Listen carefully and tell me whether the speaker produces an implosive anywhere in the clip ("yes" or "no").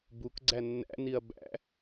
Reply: no